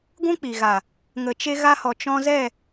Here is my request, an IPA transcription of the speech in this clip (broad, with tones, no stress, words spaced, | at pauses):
ɡʷũ˦k͡pi˨ɣa˨ | ŋə˨t͡ʃe˧ɣa˧hɔ˨ t͡ʃɔ̃˧zɛ˦˨